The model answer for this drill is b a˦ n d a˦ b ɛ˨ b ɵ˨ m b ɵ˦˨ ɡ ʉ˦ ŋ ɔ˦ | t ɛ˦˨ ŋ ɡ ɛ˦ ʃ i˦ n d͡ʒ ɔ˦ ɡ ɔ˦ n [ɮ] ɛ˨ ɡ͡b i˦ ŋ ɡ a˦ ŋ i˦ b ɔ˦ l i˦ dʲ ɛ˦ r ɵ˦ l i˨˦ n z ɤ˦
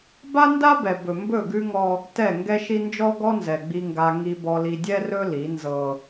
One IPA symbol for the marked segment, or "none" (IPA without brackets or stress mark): z